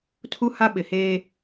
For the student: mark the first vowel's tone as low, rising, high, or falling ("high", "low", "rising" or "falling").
high